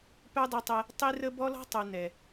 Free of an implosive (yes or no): yes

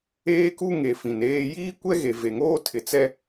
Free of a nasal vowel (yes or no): no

